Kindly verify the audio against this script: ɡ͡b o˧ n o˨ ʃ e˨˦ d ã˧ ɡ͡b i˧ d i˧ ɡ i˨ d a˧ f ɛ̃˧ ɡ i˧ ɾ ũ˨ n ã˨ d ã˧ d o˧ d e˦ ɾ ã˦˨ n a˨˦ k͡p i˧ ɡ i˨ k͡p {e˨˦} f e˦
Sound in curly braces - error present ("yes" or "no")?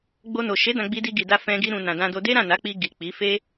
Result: yes